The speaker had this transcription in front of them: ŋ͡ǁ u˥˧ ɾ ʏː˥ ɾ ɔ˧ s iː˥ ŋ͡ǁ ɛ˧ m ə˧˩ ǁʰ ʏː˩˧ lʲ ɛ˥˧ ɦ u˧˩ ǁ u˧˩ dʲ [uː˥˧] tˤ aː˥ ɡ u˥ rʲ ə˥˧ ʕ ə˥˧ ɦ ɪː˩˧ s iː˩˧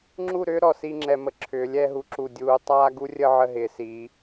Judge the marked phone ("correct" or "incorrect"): incorrect